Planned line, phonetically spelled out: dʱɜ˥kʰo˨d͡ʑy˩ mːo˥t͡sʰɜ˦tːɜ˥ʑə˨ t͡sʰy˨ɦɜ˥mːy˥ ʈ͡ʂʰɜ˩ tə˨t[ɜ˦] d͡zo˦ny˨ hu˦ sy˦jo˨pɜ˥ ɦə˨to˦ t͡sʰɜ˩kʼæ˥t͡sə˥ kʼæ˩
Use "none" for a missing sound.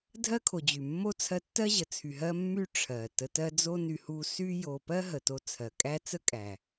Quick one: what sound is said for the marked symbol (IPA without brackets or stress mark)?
ɜ˦